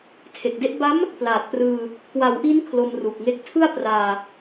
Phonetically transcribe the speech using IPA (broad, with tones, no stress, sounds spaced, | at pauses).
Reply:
tʰ e˨˩ k̚ d e˥˩ ʔ b a˦˥ m | p l aː˨˩ t̚ p r ɯː˧ | k w a˩˦ w ʔ i˦˥ n kʰ l o˧ m r u˨˩ k̚ ŋ e˥˩ k̚ tʰ ɯ˥˩ a̯ p r aː˧